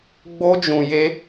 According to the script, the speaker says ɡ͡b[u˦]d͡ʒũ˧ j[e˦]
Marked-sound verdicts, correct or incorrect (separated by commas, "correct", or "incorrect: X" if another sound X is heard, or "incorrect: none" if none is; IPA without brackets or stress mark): incorrect: o˦, correct